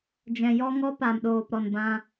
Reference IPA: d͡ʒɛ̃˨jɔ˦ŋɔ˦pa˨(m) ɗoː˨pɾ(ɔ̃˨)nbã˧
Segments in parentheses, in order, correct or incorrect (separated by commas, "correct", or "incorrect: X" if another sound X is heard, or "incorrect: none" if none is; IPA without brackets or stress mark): correct, incorrect: ɔ˨